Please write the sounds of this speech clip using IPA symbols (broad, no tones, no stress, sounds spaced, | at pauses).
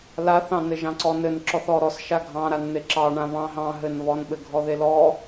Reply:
l a θ ɑ̃ n ɘ ʒ ɑ̃ ǀ ɔ n ɘ n ǁ ɔ θ ɔ ɾ ɔ s ʃ a ɡʱ ɑ̃ ɾ a n n̪ e ǁ ɑ ɳ ã β ɑ̃ ɦ ɑ̃ ɦ ɘ n β ɔ n ɓ ɘ ɡʱ ɔ ð e l ɔ